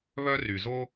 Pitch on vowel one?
high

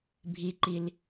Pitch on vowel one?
low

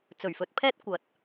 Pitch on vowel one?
low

